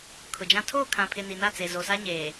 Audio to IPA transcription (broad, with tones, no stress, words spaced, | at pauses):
kʰʊ˨d͡ʒã˦ tʰoː˦˨kʰã˨pʰɪ˨ ni˨na˦˨t͡seː˨ zo˨sa˦ɲeː˨